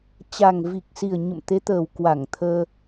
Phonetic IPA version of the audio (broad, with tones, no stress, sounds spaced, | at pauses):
t͡ɕ a˨˩ ŋ v i˨˩ k̚ s i˨˩ ə̯ ɲ ə̰˧˨ m t̪ e˨˦ t̪ əː˨˩ w k w a˧˩ ŋ t̪ʰ əː˧